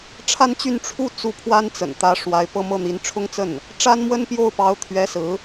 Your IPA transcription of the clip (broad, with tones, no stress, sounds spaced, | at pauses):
ʈ͡ʂʰ a˥ n t͡ɕ y˥˧ n ʈ͡ʂʰ u˥˧ t͡s u˥˩ pʰ w a˥ n t͡s ə̰˨˩ n t̪ ä˧˥ ʂ w a˧˥ ɪ̯ p ɤ˥˧ m ɤ˥˩ n̪ i˧˥ n ʈ͡ʂʰ ʊ˥ ŋ t͡s ə˥˩ n | ʈ͡ʂ a˥ n m w ə˥ n p j o˥˩ ʊ̯ p ɑ˧˥ ʊ̯ t̪ʰ ɥ ɛ˧˥ s ɹ̩˧˥